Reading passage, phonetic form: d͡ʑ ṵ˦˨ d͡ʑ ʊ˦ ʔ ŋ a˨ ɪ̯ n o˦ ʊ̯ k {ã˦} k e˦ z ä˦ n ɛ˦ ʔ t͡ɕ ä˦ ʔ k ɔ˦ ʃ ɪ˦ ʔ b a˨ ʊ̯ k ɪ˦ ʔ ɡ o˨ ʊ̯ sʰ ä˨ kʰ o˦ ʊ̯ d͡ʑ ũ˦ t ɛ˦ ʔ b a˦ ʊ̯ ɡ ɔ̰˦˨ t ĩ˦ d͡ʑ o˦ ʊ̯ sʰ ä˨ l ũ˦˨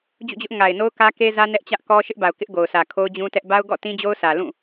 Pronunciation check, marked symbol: incorrect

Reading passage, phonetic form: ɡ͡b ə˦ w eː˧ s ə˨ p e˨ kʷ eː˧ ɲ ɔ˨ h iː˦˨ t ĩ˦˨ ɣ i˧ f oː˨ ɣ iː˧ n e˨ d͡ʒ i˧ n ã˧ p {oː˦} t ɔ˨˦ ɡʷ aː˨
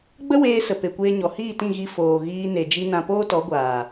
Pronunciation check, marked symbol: correct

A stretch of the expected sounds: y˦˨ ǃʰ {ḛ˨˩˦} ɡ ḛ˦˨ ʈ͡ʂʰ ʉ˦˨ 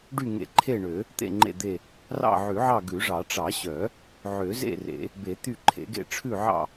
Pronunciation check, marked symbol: correct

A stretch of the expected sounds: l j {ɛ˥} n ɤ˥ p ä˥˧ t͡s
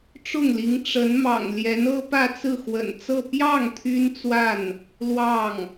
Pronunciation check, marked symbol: incorrect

